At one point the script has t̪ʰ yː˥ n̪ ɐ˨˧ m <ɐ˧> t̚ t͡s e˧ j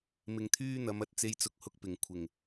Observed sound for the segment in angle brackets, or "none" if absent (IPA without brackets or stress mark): ɐ˧